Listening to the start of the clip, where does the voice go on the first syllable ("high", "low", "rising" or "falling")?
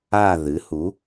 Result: falling